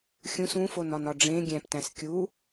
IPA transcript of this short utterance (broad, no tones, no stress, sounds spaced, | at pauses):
xʲ ũ s ũ f o n ɒ n ɒ ɖ͡ʐ ẽ ɡʲ æ̃ p t æ̃ s kʲ u